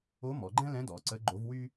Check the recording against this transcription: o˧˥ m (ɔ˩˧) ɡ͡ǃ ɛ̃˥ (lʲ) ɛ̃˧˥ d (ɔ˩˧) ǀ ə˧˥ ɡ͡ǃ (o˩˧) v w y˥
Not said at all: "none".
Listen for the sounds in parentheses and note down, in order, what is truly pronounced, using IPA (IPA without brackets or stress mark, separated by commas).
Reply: ɔ˩˧, l, ɔ˩˧, o˧˥